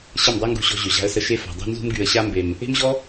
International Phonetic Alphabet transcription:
ɕə˦˨mdˤa˦ŋɡṳ˧ɕɔ̤˧ ʑø˨ʑa̤˧ə̯sə˧ ʃe˧fa̤˨dˤṳ˧ nzṳ˧mɡy˨ə̯ɕa˧mbe˨m | e̤˦mʑɔ˦

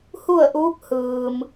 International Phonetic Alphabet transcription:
hu˥˨ə̯ʔuː˧˥k̚ hɯː˩m

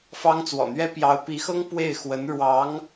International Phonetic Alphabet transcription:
fɑ˥ŋ t͡swɔ̰˨˩n̪ɥɛ˥ pjɑ˧˥ʊ̯pi˧˥xɤ˥ŋ pwe˥˩ɪ̯xwə˧˥n ɻwɑ˧˥ŋ

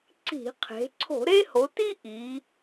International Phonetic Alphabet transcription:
ǀi̤˧˩˧qʰe̤˩˧ ǀʰo̤˧˩˧ɾe˥ho˩˧ti˥ ʔi˩˧

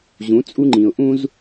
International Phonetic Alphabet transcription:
ʑũ˨˦t͡sʼu˦ŋ͡ǃĩ˨ʊ̯ ʔũ˦z

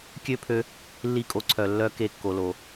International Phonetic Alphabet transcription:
kʲø˦pʰø˧ | lːi˦˨kʼo˧ǀʰœ˨ lːœ˦ ke˧kːo˨lo˨

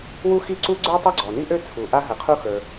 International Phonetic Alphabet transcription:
wu˥xi˥ǀu˥ ɡ͡ǀə˞˥ tˤʌ˥ɡ͡ǀɔ˩ni˥ʔø˥ t͡sʰu˩ʔa˥ɦə˩qʰu˥ xə˞˩

